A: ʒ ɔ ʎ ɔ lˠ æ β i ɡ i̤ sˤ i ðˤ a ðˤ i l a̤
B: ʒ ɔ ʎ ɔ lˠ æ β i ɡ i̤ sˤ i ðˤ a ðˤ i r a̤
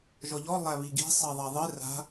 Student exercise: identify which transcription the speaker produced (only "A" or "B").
B